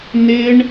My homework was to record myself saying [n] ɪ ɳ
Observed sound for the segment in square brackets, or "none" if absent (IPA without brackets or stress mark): n